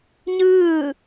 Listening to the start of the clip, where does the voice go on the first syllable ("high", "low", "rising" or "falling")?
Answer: falling